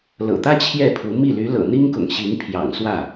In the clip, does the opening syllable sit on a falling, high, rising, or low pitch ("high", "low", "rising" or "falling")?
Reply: low